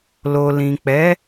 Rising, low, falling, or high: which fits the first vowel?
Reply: low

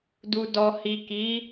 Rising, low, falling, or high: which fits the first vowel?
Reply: low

